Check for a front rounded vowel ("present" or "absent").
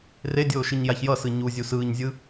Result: absent